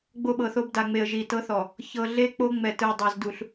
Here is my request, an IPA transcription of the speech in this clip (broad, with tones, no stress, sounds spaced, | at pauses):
ɡ͡b o˦ ɓ ɤ˨ θ o˦ b d a˨ ŋ͡m e˨ ə̯ ʒ i˨ t ɤ˦ θ ɔ˨ | ç ɤ˨ ɮ e˦ k͡p o˦ ŋ͡m ɛ˨ t ɯ˨ ə̯ dˤ ɤ˨ z d u˨ ɬ